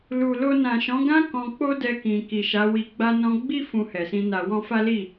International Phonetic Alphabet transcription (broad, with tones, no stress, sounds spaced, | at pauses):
l u˨ l o˧ n ã˨ ʃ ɔ̃˨˦ ɡ ã˦ k ɔ̃˧ k͡p o˦ d ɛ˧ k ĩ˨ k i˨ ʃ a˨˦ w i˧ ɡ͡b a˦ n ɔ̃˦ ɡ͡b i˦ f ũ˧ h ɛ˨ s ĩ˧ n a˧ w ɔ̃˦ f a˦ l i˦˨